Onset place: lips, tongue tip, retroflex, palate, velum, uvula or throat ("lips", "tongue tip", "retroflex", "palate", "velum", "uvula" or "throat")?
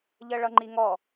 palate